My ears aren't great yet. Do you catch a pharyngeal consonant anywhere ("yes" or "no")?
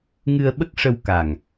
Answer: no